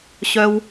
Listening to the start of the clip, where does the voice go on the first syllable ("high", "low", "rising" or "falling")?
low